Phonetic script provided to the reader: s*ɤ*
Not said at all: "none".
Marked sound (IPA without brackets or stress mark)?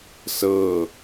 ɤ